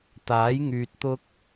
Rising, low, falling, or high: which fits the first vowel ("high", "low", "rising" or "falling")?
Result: rising